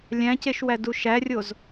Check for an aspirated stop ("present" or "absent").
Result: absent